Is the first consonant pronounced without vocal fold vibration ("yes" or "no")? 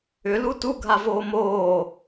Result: no